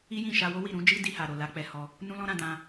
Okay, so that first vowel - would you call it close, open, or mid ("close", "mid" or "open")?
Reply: close